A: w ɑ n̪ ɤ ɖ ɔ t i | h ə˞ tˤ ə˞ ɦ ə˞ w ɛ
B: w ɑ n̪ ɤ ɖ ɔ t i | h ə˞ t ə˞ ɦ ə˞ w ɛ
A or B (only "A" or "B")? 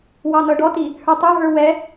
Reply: A